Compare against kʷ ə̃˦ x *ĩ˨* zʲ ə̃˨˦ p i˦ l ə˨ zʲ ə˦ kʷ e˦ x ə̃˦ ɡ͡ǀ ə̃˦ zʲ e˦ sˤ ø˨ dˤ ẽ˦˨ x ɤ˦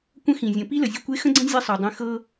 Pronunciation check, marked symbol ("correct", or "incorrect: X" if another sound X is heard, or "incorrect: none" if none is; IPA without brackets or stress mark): correct